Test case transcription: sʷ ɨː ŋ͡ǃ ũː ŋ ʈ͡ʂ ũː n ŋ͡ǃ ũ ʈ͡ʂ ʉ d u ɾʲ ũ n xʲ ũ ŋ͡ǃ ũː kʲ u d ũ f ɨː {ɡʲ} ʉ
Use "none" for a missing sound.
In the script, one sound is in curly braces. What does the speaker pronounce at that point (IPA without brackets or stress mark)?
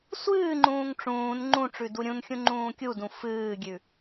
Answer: ɡʲ